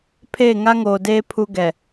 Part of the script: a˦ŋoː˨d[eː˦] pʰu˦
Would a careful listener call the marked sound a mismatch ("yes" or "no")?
no